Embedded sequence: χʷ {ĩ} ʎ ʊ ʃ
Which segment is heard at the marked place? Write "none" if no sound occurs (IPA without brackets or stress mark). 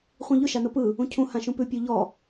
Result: ĩ